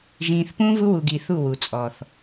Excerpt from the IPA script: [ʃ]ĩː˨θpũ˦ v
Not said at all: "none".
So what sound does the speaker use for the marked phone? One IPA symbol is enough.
ʒ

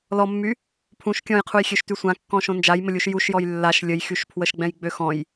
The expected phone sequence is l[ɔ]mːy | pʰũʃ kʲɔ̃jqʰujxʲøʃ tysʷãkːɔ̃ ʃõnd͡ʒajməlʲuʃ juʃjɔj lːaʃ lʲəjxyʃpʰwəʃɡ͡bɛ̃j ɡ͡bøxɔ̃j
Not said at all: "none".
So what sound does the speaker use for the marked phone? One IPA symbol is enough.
ɔ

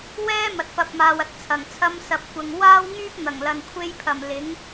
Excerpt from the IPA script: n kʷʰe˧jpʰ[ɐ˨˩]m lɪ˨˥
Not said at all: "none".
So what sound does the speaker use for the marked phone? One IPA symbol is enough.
ɐ˨˩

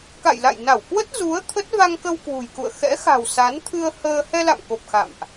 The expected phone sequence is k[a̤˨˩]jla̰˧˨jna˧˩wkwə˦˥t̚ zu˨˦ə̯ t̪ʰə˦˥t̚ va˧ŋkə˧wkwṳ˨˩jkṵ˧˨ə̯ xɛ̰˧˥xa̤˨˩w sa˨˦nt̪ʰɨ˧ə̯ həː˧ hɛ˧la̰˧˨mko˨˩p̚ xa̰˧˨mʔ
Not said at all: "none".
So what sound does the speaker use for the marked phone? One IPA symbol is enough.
a̰˧˨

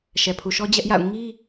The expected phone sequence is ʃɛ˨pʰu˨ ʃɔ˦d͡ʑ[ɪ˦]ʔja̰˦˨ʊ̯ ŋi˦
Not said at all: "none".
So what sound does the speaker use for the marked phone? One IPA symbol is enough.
ɛ˦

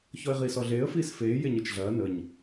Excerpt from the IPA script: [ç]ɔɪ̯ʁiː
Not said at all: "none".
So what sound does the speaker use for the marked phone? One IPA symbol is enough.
ç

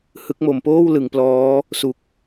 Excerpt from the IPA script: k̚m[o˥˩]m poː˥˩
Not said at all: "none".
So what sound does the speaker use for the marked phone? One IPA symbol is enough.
o˩˦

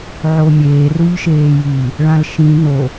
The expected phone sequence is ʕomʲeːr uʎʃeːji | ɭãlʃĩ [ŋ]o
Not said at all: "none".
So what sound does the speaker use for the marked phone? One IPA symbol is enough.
n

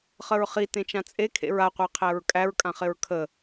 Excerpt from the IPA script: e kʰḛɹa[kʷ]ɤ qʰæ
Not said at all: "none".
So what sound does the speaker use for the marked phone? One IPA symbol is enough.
qʷ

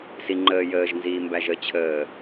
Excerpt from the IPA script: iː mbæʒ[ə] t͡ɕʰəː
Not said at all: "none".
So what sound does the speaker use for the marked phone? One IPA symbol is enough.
ə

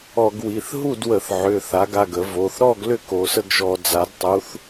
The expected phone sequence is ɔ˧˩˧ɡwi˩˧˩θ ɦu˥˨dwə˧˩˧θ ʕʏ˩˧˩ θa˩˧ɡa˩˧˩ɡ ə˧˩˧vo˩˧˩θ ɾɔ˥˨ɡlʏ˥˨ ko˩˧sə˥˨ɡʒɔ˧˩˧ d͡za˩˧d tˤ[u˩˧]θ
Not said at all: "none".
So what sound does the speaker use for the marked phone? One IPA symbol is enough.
u˩˧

